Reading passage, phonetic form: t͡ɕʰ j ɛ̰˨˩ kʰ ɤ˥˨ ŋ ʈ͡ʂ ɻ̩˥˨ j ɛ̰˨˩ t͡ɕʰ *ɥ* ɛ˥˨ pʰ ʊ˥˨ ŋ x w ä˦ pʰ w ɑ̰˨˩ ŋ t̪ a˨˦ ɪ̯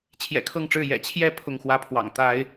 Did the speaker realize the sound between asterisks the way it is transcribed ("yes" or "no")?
no